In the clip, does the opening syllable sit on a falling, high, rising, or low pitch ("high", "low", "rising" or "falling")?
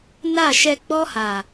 falling